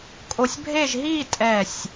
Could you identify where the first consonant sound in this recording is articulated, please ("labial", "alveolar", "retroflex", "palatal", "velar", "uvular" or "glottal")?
velar